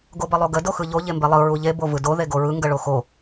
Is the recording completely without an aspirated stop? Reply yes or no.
yes